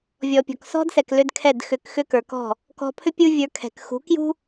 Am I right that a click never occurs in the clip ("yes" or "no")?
yes